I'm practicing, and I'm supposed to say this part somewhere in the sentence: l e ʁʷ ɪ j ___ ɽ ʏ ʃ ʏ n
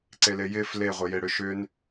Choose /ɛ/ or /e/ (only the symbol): e